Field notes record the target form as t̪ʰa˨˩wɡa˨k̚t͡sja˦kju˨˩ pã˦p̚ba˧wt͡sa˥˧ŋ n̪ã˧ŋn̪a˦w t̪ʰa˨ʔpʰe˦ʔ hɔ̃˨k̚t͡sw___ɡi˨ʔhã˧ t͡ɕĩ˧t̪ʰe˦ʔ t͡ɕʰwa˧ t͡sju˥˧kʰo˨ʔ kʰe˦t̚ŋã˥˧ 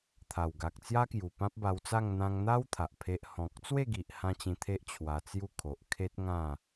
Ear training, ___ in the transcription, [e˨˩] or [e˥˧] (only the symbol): e˥˧